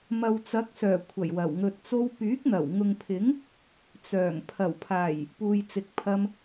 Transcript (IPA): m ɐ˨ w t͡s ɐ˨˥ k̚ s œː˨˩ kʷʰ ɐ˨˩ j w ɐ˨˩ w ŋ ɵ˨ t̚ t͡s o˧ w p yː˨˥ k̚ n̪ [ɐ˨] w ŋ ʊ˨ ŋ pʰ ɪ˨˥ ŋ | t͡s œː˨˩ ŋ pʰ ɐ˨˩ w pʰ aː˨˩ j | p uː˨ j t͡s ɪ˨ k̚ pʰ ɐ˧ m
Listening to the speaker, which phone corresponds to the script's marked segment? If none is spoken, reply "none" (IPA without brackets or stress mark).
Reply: ɐ˨˩